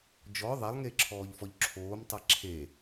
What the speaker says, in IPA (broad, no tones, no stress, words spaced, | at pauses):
d͡ʒɔ ðˤalˠŋeǁʰɔːʎfɔʎ ǁʰoːm tˤaǁʰe